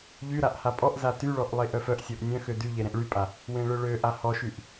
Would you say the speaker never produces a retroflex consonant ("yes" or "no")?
no